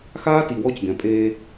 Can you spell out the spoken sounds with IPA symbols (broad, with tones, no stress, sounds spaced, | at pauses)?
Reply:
x aː˦ t i˨ w ɔ˦ c ɡ ɛ̃˨ pʼ eː˦